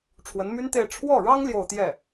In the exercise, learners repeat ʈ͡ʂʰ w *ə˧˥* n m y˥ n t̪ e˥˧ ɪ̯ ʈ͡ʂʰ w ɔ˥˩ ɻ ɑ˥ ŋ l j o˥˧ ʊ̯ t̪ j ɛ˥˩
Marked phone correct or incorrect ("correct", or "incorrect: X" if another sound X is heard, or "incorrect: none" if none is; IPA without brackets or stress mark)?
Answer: correct